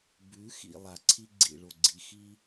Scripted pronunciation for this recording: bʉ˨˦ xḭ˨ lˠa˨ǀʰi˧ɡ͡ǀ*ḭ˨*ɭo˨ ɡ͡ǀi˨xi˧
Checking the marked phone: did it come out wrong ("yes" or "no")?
no